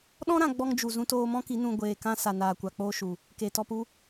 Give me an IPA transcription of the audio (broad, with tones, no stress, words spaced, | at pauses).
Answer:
ɗɔ̃˦ ɾã˧ ɡ͡bɔ˧ŋd͡ʒu˨ zũ˧toː˧mɔ̃˦ki˨˦ nũ˧ ɡʷeː˨kã˧sa˨ naː˨kʷa˨k͡poː˧ ʃu˨ | ke˨tɔ˧pu˦